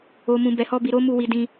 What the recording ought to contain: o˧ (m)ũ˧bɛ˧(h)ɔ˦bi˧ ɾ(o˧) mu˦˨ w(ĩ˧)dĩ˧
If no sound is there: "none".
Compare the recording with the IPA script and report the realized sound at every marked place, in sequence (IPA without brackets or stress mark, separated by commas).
m, h, o˦, i˧